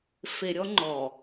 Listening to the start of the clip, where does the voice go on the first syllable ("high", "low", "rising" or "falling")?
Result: low